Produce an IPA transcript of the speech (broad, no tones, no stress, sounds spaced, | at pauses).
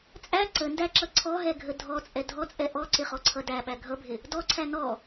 t͡sʼ æ ǀ ə n d æ ǁ ʌ ǀʰ ɔ ɦ ɛ ɡʱ ə dʱ ɔ t͡sʼ ɛ dʱ ɔ t͡sʼ ɛ ʔ ɔ ǀ ɪ χ ɔ ǀʰ ʌ d æ ɓ æ ɡʱ ʌ bʱ ɪ | d ɔ ǀʰ æ n ɔ